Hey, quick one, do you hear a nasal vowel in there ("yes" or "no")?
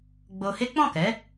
yes